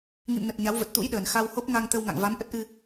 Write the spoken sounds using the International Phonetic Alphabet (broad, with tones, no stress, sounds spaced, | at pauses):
ŋ ḭ˧˨ m n ə˨˩ t̚ ɲ a˨˦ w v ə˨˩ t̚ t̪ ṵ˧˥ j ɗ əː˨˩ n x a˧ w h o˦˥ p̚ ŋ a˧ ŋ t̪ ə˧ w ŋ a̰˧˨ ŋ v a˨˦ m ʔ ə˦˥ t̚ ʔ ɨ˧